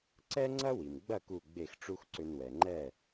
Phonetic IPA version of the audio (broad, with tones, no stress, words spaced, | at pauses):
ǀɛ˥ŋ͡ǀɐ˥wi˩mɡ͡bɐ˥˩ ku˥˩ ɡ͡be˥˩xʈ͡ʂu˥xǀʏ˧n wɛ˩ŋ͡ǃɛ˥˩